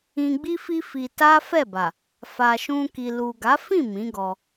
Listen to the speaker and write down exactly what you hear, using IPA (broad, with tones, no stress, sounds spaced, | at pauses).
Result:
ĩ˧ ɡ͡b i˦ f i˦ f i˧ t a˦ f ɛ˦˨ b a˨ | f a˨ ʃ ũ˧ k i˨ l u˨ ɡ a˨˦ f ĩ˦˨ m ĩ˨˦ ɡ ɔ˧